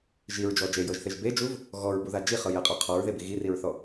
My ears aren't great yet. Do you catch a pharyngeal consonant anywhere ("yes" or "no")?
no